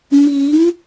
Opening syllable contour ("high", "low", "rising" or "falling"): rising